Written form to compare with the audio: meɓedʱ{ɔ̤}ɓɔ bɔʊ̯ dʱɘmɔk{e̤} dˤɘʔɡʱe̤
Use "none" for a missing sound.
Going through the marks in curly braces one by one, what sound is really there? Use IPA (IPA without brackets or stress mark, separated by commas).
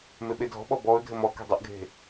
ɔ̤, e̤